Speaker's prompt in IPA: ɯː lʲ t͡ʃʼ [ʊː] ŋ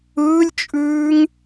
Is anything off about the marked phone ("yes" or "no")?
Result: yes